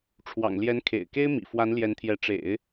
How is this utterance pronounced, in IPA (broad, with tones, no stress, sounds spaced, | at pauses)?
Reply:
ʈ͡ʂʰ w ɑ̰˨˩ ŋ l j ɛ˧˥ n kʰ ḛ˨˩ ɪ̯ k e˥ ɪ̯ m ḭ˨˩ f w a˧˥ n l j ɛ˧˥ n t̪ʰ j ɛ˧˥ ʈ͡ʂ ḛ˨˩˦ ɪ̯